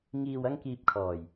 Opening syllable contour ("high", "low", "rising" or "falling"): low